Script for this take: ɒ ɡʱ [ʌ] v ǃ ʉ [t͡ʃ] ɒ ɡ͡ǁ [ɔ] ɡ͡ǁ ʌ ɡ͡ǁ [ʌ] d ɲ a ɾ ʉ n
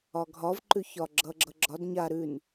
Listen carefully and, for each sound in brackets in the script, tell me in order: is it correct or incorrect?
incorrect: ɒ, incorrect: ç, incorrect: ʌ, incorrect: ɒ

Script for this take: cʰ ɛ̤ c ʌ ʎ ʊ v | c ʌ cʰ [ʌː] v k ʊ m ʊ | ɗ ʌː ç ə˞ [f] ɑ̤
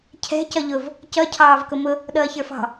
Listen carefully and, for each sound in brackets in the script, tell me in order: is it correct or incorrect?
incorrect: ɑː, correct

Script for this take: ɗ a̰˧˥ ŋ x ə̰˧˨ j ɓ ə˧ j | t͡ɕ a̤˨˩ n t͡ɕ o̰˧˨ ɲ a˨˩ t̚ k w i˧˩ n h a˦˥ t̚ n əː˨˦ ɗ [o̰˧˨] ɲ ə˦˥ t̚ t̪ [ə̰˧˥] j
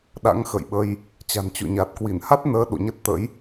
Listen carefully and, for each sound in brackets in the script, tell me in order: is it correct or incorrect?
correct, correct

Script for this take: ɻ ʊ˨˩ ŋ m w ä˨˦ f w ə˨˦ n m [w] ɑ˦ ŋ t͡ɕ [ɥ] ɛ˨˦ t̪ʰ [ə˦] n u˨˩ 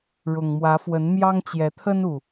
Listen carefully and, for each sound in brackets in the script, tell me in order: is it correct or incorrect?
incorrect: j, incorrect: j, correct

